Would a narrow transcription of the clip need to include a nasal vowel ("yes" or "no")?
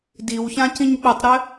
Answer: yes